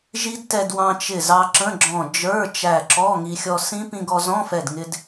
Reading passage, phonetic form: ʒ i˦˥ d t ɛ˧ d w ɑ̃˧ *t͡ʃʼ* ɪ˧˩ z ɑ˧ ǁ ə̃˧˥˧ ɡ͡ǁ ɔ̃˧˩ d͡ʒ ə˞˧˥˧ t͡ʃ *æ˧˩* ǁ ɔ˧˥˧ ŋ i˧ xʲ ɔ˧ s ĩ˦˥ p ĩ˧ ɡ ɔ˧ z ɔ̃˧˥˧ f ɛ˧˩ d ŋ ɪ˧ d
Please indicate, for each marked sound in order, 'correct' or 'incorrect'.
incorrect, correct

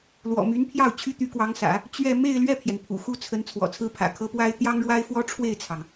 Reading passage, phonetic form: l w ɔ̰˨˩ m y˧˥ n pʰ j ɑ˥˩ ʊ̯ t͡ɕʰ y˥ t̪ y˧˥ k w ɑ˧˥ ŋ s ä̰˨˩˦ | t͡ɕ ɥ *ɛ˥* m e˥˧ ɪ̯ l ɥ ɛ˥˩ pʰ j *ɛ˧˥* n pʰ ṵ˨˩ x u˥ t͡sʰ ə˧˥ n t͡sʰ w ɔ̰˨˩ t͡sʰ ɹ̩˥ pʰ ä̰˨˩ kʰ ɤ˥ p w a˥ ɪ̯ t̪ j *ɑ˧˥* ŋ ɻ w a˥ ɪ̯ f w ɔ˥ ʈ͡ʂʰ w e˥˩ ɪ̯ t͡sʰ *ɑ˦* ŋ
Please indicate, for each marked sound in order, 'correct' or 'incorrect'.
incorrect, incorrect, incorrect, incorrect

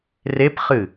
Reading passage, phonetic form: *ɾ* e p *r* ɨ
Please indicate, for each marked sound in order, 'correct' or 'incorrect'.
incorrect, incorrect

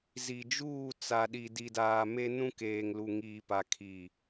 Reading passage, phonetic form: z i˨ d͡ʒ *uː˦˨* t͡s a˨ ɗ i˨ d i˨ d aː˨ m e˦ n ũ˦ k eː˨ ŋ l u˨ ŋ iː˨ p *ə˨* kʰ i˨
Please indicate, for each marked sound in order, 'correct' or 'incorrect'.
correct, incorrect

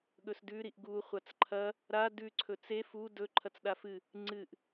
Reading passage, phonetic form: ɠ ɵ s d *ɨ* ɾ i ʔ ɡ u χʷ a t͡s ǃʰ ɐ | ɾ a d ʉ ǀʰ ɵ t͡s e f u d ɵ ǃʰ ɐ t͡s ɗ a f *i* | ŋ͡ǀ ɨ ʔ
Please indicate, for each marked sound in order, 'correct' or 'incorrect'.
incorrect, incorrect

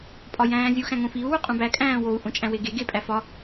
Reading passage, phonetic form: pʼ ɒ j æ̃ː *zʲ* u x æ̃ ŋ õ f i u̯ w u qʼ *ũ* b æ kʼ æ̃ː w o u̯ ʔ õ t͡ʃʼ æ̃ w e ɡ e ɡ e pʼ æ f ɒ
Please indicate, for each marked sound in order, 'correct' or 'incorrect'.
correct, correct

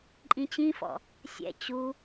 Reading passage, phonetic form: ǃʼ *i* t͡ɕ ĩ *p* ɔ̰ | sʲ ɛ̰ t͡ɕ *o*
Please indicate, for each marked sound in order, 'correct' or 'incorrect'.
incorrect, incorrect, incorrect

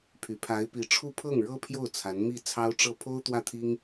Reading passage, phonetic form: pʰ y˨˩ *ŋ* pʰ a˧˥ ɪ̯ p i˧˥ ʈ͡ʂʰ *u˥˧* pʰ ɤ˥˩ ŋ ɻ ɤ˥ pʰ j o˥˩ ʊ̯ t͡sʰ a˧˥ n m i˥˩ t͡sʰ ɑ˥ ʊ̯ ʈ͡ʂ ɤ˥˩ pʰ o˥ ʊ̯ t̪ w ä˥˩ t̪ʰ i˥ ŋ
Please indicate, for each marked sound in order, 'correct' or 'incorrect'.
incorrect, correct

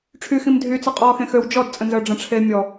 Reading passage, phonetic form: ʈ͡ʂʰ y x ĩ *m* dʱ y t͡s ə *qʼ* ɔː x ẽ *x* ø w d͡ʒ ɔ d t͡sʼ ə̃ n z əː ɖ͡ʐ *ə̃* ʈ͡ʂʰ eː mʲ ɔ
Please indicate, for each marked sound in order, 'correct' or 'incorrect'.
correct, correct, correct, correct

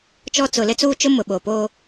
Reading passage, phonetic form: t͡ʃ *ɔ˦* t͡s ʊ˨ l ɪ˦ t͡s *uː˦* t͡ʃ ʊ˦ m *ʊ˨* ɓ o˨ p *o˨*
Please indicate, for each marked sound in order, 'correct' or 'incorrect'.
correct, correct, correct, incorrect

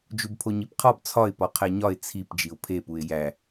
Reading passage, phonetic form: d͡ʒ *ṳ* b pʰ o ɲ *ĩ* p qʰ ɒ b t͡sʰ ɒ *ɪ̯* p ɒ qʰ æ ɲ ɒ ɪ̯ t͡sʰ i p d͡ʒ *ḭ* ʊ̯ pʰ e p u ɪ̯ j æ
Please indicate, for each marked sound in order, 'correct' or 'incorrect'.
incorrect, incorrect, correct, incorrect

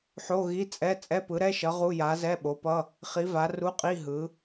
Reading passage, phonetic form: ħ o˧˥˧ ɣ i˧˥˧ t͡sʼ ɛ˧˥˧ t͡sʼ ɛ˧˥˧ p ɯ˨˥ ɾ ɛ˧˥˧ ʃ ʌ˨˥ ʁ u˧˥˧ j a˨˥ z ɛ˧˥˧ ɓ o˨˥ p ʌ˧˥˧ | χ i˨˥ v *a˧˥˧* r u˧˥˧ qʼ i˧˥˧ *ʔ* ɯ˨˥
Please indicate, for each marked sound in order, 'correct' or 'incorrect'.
incorrect, incorrect

